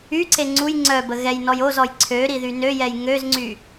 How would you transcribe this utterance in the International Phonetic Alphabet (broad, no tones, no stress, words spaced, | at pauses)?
yǀe ŋ͡ǀuj ŋ͡ǀœbə ɣɛjnɔj ozɔj ǀʰøɾi ðynøjɛj ŋøzŋ͡ǀy